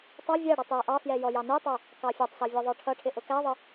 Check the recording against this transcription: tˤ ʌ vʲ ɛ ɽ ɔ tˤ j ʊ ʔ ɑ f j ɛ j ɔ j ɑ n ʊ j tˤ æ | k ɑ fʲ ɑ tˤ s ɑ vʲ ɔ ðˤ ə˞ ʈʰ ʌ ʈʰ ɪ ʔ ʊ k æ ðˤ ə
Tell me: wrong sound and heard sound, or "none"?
none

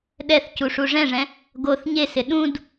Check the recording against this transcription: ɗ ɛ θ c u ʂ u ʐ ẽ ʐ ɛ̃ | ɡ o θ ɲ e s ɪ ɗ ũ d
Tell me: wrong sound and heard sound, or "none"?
ẽ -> ɛ̃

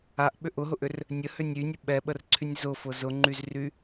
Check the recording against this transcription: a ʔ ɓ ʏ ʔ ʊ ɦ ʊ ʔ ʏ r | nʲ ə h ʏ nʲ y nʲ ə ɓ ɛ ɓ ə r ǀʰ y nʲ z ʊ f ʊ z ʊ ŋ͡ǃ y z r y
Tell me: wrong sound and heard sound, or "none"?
none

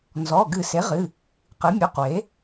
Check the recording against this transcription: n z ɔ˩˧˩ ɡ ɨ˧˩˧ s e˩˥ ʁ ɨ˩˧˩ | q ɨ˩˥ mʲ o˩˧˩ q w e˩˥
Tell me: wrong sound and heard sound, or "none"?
none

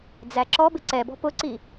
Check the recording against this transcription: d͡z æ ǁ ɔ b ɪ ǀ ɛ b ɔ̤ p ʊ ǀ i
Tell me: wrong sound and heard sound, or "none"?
none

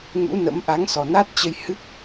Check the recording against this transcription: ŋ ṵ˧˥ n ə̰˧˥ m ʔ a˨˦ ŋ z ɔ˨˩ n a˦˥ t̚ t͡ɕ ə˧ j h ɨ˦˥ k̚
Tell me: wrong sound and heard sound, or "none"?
z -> s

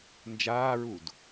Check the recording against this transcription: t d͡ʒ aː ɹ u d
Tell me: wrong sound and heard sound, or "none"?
t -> n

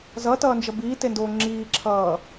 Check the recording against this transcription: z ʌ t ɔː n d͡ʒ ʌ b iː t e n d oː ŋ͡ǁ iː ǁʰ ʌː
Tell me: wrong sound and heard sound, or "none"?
ɔː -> ʌː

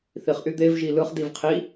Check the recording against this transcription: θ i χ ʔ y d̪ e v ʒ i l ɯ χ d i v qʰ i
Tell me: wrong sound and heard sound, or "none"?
none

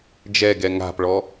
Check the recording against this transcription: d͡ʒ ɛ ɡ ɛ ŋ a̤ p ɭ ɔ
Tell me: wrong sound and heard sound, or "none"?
none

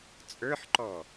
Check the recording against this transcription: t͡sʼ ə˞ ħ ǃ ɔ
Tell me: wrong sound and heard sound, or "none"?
none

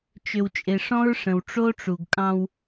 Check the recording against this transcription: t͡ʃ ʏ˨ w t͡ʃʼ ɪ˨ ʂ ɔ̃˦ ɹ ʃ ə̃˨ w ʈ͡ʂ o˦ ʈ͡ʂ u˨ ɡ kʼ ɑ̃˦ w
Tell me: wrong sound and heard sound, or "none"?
ʃ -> ʂ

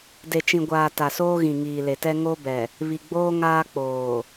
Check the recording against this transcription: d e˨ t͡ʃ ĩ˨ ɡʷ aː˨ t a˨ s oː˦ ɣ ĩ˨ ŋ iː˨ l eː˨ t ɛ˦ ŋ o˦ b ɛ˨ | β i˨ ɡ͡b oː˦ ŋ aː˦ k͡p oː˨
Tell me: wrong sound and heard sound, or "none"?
eː˨ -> e˨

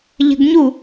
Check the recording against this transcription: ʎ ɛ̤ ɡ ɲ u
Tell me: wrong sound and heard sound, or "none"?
none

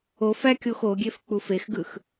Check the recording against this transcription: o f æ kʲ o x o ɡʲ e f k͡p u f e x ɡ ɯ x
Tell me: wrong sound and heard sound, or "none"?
none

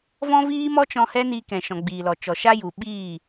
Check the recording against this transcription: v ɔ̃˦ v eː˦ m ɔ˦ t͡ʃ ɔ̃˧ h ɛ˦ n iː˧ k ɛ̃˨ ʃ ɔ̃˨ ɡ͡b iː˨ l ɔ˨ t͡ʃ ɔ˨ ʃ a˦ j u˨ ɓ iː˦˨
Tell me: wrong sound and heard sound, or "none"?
eː˦ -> iː˦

